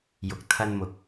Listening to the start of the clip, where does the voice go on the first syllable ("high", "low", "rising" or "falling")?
rising